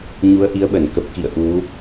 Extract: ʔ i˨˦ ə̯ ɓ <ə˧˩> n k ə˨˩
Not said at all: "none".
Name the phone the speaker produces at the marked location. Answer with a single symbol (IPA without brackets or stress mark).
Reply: ə˧˩